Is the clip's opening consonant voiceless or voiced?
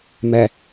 voiced